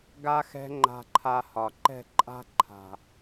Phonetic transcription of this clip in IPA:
ɡ a˧ x ɛ̤˧ ŋ͡ǃ a̤˧ ǃʰ a˧ h ɒ˨ ǃ ɛ̤˦˨ ǃʼ a̤˦ ǃʰ a̤˨

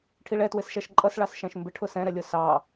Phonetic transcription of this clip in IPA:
ʈʰ i ɭ ɛ t w ɪ s ʃ æ ʃ ǃʼ ʌ s ɭ ɑ s ʃ æ̃ ʃ m b ɪ ʈʰ ʊ s ɛ̃ ɾ ɛ lʲ ʊ s ɑ

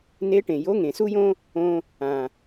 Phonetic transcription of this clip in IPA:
n e˧˥ ʈ ẽ˩ j o˧˥ ŋ ẽ˩ s u˥ j õ˥ | õ˧ | ã˩

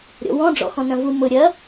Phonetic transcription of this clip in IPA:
ɾʲ ɔ̰ w ɔ̃ ɖ͡ʐ ɔ̰ x ɔ̃ n ɐ̃ v u m ʊ ɾʲ ɐ

